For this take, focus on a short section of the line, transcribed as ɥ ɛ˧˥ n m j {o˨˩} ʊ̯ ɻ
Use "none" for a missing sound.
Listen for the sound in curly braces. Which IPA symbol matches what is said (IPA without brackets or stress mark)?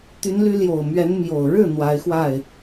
o˨˩